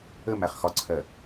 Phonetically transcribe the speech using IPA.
ə mæχxɒǀʰɜ

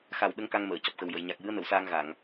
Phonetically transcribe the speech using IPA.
xa˨˩wɗə˧˥ŋ ka˧ŋməː˨˩˨ cɔ˨˩p̚xə˨˩wjə˨˩˨j ɲa˨˩k̚jɨ˧˥ə̯nə˨˩˨wsaː˧ŋ ɣa˨˩˨ŋ

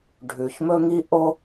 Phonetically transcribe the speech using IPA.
ɖʱʉ˩çmɵ˥ŋi˥ ʔo˥

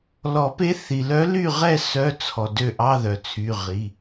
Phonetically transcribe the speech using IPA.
lɔ˨˩˦pe˧˥θi˩lœ˧˥ ly˦˨ʁɛ˦˨ sœ˧˥˧t͡sʰɔ˩ dø˦˨ʔɑ˧˥˧ðœ˩t͡sʰy˩˧˩ ʁi˩˧˩

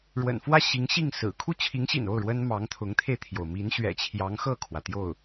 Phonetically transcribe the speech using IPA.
ɻwə̰˨˩nfwä˥˩ ɕi˧˥ŋɕi˥˩ŋsɹ̩˨˩ kʰu˥˩t͡ɕʰi˧˥ŋɕḭ˨˩no˥˩ʊ̯ ɻwə˥n mɑ˧˥ŋt̪ʰʊ˧˥ŋt̪ʰe˧ɪ̯t̪ʰjo˩ʊ̯ mi˧˥nɕɥɛ̰˨˩t͡ɕʰjɑ˧˥ŋ xɤ˥˩kʰwä˩ t̪jo˥˩ʊ̯

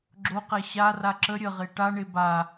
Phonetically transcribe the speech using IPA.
ɡ͡ǁoqɛ ɕara ǁə ɾʲəʁe ʈaɳe ba

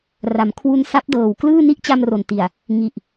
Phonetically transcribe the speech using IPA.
ra˩˦mkʰwu˧n sa˦˥p̚dɤː˨˩w klɯː˥˩ ni˦˥ʔt͡ɕa˧m ro˨˩nti˨˩a̯ | ŋi˨˩ʔ

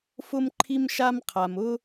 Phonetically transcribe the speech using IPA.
fʊ˥m ǃʰi˥mʃa˥mqʰa˩m ʊ˥

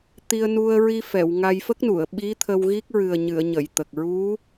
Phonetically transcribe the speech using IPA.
t̪i˧ə̯nu˧ə̯ɹi˧fɛ˨˩˨w ŋa˧jfə˦˥k̚nu˨˩˨ə̯ ɓi˧˥ t̪ʰə˧wɣi˦˥k̚ɹɨ˨˩ə̯ɲɨ˨˩˨ə̯ ɲə˨˩˨jt̪ə˨˩k̚ ɹu˧˥

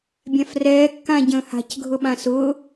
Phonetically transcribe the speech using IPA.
bʲãfrɛː kːãɟə̃ːha̤c ɡʱʊɓãsʊː

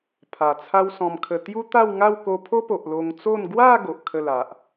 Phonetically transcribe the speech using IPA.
pʰa˨˩t͡sʰa˦wsɔ̃˧mkʰə˧ t̪ju˦t̪a˥˧wŋa˥˧w ko˧pʰo˦po˨ʔ lo˧ŋt͡so˥˧n ɡwa˥˧ ɡo˨ʔkʰə˥˧la˨ʔ

